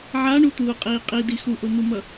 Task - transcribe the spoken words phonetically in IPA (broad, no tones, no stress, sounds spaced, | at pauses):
ʕ a ɳ u t̪ uː qʼ iː qʼ i d i x u ʔ o n̪ u m ʌ